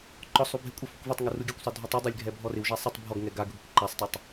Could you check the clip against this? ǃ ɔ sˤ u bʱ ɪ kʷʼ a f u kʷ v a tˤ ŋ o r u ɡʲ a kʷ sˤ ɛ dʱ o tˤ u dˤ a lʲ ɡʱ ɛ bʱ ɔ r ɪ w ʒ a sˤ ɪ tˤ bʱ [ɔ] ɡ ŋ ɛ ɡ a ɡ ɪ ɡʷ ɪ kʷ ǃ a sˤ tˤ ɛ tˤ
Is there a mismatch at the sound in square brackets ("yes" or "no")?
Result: no